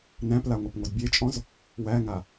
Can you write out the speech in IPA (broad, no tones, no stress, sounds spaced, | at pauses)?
n æ̃ p l a ŋʷ ʌ p ŋʷ ʌ d bʲ e t͡ʃʼ ɔ̃ z | w æ ŋ a